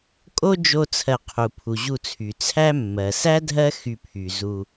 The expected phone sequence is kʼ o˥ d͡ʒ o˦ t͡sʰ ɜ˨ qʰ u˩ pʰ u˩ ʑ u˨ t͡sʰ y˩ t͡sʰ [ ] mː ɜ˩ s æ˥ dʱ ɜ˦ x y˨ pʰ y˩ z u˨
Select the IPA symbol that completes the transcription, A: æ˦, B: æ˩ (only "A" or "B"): A